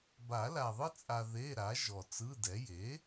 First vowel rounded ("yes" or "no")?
no